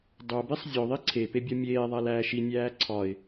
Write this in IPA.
dˤ o b i sˤ zʲ o ðˤ i ǀʰ e p e bʲ ɒ mʲ eː ðˤ æ l æː ʃ i nʲ æː ǀʰ ɒ ɪ̯

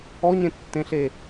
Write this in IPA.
ɔ ɲ ẽ tː ẽ ɬ e

